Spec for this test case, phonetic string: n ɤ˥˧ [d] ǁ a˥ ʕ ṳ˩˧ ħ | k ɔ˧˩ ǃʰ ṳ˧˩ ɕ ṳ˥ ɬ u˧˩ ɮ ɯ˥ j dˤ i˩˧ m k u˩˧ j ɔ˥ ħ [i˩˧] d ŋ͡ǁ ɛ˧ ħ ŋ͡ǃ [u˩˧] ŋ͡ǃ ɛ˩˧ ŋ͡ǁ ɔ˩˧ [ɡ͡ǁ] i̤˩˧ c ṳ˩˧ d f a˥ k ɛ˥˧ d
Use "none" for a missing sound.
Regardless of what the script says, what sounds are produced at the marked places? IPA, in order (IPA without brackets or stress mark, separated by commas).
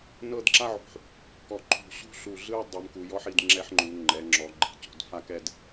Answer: d, i˩˧, u˩˧, ɡ͡ǃ